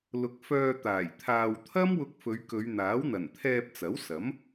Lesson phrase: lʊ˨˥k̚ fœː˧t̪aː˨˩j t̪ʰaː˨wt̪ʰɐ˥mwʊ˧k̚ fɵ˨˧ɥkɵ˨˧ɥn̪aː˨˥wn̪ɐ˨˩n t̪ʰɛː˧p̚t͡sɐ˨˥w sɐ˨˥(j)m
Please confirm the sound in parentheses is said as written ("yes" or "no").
no